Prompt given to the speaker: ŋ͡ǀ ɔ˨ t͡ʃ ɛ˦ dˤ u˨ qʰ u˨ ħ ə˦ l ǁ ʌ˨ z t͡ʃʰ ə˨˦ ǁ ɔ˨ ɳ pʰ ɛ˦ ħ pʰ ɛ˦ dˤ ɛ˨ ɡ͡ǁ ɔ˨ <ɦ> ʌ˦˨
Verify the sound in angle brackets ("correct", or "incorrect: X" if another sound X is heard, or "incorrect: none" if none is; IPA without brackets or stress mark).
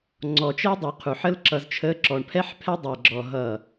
correct